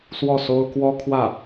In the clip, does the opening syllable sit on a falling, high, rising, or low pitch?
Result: falling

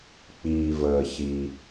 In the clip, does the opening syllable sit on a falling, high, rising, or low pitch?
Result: low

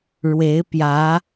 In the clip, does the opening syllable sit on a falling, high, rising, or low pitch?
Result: rising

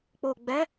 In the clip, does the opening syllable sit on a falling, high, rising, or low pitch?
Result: low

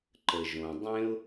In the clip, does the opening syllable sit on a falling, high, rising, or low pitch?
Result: low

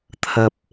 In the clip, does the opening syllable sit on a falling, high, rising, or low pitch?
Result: low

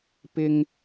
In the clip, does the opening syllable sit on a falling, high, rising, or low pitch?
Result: high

